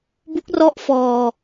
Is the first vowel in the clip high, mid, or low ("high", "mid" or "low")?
high